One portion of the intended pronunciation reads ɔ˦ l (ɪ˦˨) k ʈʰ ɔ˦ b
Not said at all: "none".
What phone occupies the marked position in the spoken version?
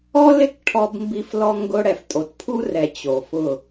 ɪ˦˨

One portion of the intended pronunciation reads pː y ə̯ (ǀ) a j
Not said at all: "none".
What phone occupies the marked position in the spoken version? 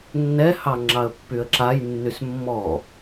ǁ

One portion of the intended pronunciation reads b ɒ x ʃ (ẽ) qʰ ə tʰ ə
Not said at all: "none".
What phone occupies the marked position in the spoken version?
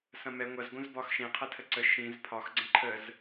ẽ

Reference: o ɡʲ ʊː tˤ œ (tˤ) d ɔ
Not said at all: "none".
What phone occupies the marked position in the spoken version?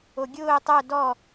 none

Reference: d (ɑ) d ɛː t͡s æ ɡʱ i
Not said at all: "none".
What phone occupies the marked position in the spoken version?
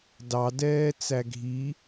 ɑ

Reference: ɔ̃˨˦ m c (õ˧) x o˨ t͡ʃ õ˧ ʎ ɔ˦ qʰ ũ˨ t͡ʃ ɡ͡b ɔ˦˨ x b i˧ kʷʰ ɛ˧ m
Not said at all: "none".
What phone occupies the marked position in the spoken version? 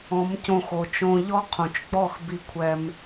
õ˧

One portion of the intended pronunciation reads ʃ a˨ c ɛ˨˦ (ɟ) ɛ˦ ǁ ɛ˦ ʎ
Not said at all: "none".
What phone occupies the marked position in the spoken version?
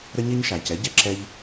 ɟ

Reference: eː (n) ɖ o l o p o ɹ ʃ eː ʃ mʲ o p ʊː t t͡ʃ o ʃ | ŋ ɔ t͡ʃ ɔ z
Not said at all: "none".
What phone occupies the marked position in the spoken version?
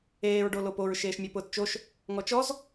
ɹ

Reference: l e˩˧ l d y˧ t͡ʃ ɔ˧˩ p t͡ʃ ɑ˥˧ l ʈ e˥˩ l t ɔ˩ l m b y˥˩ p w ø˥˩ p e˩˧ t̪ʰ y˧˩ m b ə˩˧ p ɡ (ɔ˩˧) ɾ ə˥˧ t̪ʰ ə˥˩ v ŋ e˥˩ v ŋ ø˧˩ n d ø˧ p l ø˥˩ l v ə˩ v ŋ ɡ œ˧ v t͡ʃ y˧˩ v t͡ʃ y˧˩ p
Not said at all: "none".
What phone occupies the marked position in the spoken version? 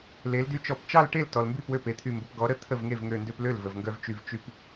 ɔ˩˧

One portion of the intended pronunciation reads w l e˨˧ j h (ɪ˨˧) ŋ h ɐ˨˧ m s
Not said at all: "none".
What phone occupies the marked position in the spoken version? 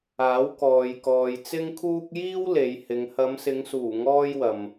ɪ˨˧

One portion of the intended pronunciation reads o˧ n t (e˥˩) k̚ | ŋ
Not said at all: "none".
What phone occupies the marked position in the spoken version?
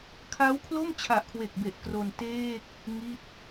eː˥˩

